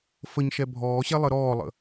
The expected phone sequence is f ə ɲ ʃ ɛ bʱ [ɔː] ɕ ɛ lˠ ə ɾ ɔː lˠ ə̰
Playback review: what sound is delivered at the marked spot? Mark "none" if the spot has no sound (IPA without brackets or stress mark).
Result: ɔː